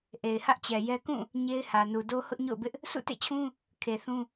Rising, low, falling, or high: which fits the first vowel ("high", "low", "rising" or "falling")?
low